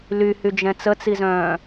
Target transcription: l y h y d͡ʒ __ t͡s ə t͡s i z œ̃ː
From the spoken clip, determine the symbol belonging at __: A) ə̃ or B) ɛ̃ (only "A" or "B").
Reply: B